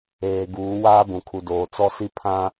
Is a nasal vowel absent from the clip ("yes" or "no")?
no